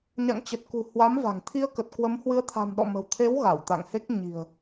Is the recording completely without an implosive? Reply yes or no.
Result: no